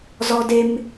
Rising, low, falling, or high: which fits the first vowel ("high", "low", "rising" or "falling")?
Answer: high